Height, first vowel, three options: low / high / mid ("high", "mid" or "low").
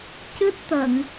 high